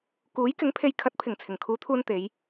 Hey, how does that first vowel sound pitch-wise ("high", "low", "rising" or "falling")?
rising